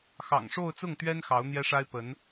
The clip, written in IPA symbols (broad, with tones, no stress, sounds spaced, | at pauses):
x ɑ̰˨˩ ŋ ʂ o˥˧ ʊ̯ t͡s ʊ˥˩ ŋ t̪ ɥ ɛ˥ n x ɑ˧˥ ʊ̯ n̪ j ɛ˥ ʂ a˥ ɪ̯ p ə˧˥ n